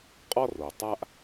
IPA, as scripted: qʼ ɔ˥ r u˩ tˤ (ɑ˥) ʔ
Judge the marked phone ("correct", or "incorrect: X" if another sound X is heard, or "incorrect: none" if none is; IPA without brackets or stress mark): incorrect: a˥